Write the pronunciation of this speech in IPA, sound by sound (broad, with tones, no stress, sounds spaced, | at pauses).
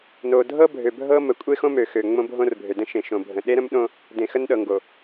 n o˨ dʱ ɤ˦ bʱ ø˨ bʱ ɤ˦ m ə˨˦ kʷʼ e˦ x õ˦ m ø˨ x ø˨ ŋ͡m õ˦ bʱ õ˦ r bʱ ø˨ d ə̃˦ ʃ ẽ˨ ʃ õ˨ bʱ ə̃˨ ɗ e˦ ɾ ə̃˦ m ɗ õ˦ | d ẽ˨ x ə˦ n ɗ ɤ˨ ŋ ɡ o˨